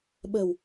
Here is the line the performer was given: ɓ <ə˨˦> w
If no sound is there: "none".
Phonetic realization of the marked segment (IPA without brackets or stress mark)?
ə˨˩